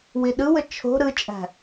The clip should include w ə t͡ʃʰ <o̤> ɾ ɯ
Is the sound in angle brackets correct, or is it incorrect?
correct